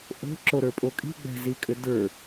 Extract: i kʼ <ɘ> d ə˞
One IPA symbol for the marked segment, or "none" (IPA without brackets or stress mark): ɘ